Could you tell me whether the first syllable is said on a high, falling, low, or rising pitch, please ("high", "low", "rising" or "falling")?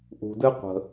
low